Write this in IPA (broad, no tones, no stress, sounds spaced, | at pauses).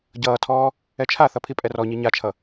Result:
ɟ ʌː tʰ ɔː | ɛ t͡ʃʰ a θ ʌ pʰ i pʼ ɛ r ɔ ɲ i ɲ a t͡ʃʰ ʌ